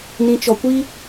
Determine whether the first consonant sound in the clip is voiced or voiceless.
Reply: voiced